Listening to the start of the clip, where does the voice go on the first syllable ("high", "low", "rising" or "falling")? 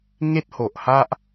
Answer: high